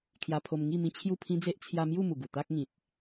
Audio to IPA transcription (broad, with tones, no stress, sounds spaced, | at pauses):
kʰ j a˧ pʰ o˧ m ŋ i˥˧ m ĩ˦ t͡ɕʰ j u˥˧ pʰ ĩ˦ d͡z e˦ ʔ t͡sʰ j a˧ m j u˥˧ m u˨˩ ɡ u˨˩ t̪ a˦ k̚ ŋ ĩ˨ t̚